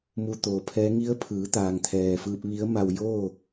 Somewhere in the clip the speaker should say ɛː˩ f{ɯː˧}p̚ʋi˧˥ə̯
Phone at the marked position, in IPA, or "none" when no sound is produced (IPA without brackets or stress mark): ɯː˧